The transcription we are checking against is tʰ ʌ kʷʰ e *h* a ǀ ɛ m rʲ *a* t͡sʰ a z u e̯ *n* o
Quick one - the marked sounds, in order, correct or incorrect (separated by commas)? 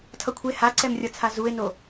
correct, incorrect, correct